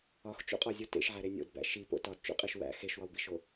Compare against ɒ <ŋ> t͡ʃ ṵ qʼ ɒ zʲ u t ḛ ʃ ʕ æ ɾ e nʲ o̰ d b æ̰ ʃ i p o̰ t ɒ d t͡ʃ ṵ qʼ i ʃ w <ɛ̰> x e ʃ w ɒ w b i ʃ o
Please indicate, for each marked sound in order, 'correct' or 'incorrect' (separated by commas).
incorrect, incorrect